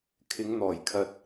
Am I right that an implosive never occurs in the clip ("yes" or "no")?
yes